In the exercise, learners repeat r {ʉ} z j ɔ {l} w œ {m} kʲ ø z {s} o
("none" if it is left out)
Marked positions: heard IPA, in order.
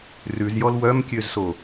ʉ, l, m, s

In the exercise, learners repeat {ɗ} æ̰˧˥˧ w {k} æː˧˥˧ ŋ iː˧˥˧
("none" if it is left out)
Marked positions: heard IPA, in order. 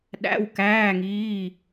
ɗ, k

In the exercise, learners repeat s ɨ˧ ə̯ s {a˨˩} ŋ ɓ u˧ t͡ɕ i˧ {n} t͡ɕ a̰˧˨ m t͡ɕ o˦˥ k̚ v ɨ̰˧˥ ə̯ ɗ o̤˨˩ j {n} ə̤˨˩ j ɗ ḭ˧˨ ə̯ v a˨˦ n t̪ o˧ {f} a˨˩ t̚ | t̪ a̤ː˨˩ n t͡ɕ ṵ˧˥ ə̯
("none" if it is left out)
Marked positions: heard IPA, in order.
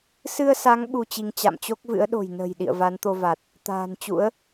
a˨˦, ŋ, n, v

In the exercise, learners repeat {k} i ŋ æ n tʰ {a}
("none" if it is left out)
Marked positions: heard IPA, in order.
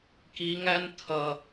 k, ʌ

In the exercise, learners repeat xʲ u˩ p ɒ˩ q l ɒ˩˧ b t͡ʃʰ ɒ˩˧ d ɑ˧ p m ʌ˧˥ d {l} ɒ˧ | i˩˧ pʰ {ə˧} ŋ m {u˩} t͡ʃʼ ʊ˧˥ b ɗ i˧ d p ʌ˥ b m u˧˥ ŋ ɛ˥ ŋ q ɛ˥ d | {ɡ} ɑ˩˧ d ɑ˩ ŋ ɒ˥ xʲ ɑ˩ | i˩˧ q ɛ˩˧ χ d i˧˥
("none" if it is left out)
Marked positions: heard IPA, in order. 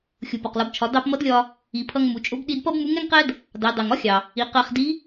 lʲ, ʌ˧, u˩, d

